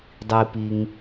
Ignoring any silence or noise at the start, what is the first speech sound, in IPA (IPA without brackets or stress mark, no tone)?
dˤ